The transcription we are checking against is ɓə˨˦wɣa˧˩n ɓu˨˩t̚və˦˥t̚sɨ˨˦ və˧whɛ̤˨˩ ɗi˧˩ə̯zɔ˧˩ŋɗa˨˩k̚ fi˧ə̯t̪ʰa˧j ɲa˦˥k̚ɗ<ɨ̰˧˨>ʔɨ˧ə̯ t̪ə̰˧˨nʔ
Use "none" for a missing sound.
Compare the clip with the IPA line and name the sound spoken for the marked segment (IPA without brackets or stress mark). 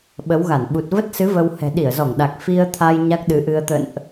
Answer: ɨ˨˦